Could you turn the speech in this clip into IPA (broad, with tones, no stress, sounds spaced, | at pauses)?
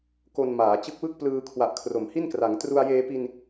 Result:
k o˧ n m aː˩˦ t͡ɕ ɯ˦˥ k̚ w ɯ˥˩ k̚ p l ɯː˧ kʰ w a˨˩ ʔ kʰ r o˩˦ m h i˥˩ n k r a˩˦ ŋ t r u˧ a̯ j eː˧ p i˧ n